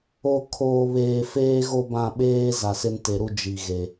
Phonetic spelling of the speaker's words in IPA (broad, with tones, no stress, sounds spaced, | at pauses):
o˦˨ kʰ oː˨ β eː˨ f eː˦ ɣ o˦ b ã˦˨ ɓ eː˦ z a˨ s ɪ˦ n t e˨ ɾ u˦ d͡ʒ i˨ ɣ e˨